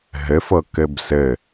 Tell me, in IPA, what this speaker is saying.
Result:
ɦ ɘ f ɤ k ɘ b s ɘ

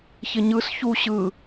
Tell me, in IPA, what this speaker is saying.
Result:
ç ɪ ɲ ɯ s ç u ɕ ɯ

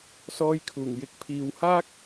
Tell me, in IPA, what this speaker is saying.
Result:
s ɔː˧ j kʰ uː˨˩ ŋ j ɪ˨˥ k̚ pʰ iː˨ w h aː˥ k̚

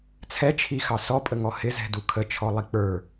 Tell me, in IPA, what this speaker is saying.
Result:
t͡sʰ ɛ t͡ʃʰ i x ɑ s ɔ pʼ ə ŋ ɔ h ɪ z ɛ̤ d u kʰ ə t͡ʃʰ ɔ lˠ i k͡p ə˞

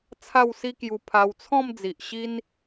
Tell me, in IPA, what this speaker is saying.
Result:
t͡sʰ a˥˧ w s i˦ k j u˧ pʰ a˧ w t͡sʰ ɔ̃˥˧ m d͡z i˨ ʔ ɕ i˦ n

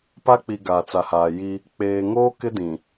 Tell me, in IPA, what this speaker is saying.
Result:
p a˦ k͡p i˨ ɡ a˨ t͡s a˨ h aː˨ j i˦ | k͡p eː˨ ŋ oː˦ k ɪ˦ d ĩ˨

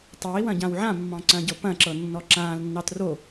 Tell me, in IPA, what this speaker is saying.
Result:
tˤ ɐ i̯ w ɐ̃ ɟ ã w ʕ ã mː ɑ̃ ǀ ɐ̃ː ɟ ɤ p ɐ̃ ǁ ɤ nː ɔ ǁ ãː l nː ɑ t r o

